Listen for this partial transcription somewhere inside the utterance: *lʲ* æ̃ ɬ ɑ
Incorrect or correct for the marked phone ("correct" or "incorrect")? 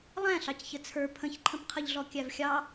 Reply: incorrect